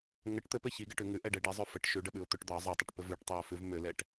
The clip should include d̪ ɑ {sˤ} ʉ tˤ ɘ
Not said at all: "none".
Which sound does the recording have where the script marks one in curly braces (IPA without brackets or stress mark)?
zˤ